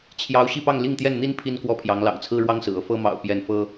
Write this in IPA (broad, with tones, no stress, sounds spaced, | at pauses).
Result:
t͡ɕʰ j ɑ˧˥ ʊ̯ ɕ i˥˧ p ɑ˥˧ ŋ l i˥˧ ŋ t̪ j ɛ˥˩ n n̪ i˥ n pʰ i˥ n k w ɔ˥˩ pʰ j ɑ˧˥ ŋ l ɑ̰˨˩ ŋ t͡sʰ ɹ̩˥ ɻ w ɑ˥ ŋ s ɹ̩˨˩ ɤ˥˩ f ɤ˥ m ɑ̰˨˩ ʊ̯ p j ɛ˥˩ n f ɤ˥